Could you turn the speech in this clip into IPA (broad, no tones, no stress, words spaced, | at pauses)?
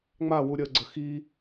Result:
ŋ͡mawu ɾʲəɡ͡ǀə xi